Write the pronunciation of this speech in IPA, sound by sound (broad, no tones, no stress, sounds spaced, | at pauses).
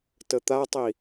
t ə t̪ a tˤ i